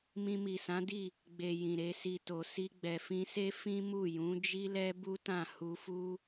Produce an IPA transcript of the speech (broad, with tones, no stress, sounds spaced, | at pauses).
m ĩ˧ m i˨ s ã˨˦ d i˦˨ | ɡ͡b e˨ j ĩ˨ ɾ e˧ s i˧ t o˨ s i˧ ɡ͡b ɛ˨ f ĩ˧ s e˦ f ĩ˦ m u˦˨ j ũ˨˦ d͡ʒ i˦ l ɛ˦ b u˦ t ã˦˨ h u˧ f u˦